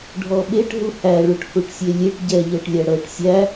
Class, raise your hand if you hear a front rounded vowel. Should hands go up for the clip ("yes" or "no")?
no